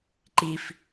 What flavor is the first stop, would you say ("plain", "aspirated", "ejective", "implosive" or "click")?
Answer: click